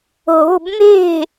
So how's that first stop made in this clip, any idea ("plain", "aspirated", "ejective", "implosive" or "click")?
plain